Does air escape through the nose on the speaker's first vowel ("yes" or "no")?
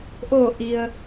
no